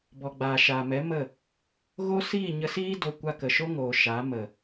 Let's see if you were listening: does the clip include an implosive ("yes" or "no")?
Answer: no